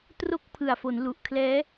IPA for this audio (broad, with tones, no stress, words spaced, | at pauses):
tro˦˥k̚pʰɯ˨˩a̯fo˩˦n lu˨˩ʔkʰlɛː˦˥